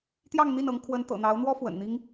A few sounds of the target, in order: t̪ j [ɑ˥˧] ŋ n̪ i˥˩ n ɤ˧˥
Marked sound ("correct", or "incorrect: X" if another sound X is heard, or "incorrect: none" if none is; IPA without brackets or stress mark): correct